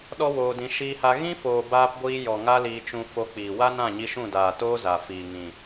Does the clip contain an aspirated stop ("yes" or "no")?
no